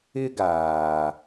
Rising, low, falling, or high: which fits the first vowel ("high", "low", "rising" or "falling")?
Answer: high